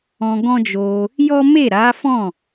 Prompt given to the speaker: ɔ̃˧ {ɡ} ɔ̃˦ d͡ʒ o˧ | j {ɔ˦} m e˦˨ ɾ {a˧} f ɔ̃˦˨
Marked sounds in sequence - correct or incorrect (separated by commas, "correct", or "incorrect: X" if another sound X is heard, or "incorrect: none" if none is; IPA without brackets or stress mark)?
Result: correct, correct, incorrect: a˨˦